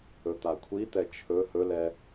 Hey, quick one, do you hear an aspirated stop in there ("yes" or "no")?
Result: yes